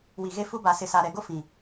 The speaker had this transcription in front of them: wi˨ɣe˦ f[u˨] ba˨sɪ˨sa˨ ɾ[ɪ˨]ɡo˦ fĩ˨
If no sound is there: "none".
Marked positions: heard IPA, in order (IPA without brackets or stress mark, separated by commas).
u˦, ɛ˨